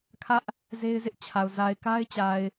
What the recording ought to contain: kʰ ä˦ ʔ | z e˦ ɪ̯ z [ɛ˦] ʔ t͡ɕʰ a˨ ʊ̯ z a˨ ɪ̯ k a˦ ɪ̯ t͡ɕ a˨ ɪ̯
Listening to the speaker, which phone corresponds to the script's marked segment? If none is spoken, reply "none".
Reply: ɪ˦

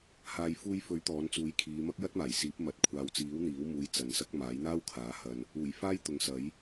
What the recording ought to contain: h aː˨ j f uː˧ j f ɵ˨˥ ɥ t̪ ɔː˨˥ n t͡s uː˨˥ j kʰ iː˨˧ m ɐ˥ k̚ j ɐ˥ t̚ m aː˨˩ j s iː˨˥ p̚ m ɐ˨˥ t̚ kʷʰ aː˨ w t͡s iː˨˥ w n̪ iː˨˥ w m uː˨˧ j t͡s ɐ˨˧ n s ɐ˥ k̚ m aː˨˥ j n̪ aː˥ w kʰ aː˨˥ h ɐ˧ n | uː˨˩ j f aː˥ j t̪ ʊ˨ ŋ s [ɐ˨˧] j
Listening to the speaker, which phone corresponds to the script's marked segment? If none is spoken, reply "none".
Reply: ɐ˨˥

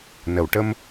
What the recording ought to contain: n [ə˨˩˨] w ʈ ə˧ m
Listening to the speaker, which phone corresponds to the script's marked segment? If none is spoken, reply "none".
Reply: ə˨˩˨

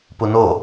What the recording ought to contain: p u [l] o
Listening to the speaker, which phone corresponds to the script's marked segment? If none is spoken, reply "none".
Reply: n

